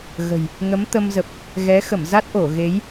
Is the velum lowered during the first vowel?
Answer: no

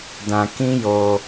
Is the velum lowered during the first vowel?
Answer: yes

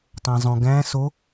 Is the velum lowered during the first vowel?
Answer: yes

